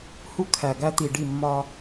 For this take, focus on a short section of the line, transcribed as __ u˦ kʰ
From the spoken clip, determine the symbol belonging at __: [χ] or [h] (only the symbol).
h